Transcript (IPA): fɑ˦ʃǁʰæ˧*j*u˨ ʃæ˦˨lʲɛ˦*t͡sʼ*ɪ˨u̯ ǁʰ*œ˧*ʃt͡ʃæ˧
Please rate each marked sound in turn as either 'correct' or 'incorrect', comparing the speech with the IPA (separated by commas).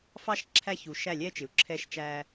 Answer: incorrect, incorrect, incorrect